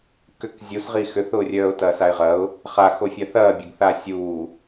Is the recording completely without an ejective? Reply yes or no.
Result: yes